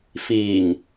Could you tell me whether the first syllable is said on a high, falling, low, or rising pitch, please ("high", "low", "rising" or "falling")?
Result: low